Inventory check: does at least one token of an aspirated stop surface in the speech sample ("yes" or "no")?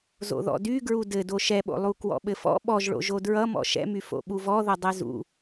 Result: no